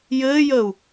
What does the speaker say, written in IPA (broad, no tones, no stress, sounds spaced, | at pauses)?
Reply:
j ɘː j əː u̯